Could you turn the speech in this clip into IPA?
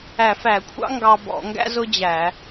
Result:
æ˧˩˧ f æ˧˩˧ kʷʰ ɑ̰˥ ŋ ɡ ɑ˧ b ɔ̰˧˩˧ ŋ ɡ æ̰˥ z ʊ˥ d͡ʑ æ˧˩˧

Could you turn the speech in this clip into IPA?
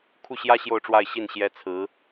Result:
kʰ u˥˩ ɕ j ä˥ ɕ j o˥˧ ʊ̯ ʈ͡ʂ w a˥˧ ɪ̯ ɕ i˥˩ n ɕ j ɛ˥ t͡sʰ ɹ̩˧˥

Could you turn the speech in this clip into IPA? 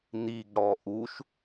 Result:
n̪ i ɡ ɽ ɔ ʔ u ʃ

